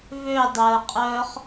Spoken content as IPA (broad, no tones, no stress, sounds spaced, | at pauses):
v ø dˤ əː qʼ œː χ